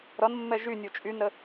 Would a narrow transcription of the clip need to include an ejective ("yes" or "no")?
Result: yes